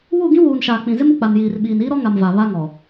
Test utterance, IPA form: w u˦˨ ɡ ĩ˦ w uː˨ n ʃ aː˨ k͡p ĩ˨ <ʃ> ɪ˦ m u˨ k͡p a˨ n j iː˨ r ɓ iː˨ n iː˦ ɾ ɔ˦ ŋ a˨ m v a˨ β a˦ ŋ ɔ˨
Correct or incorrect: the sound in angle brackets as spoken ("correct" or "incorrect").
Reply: incorrect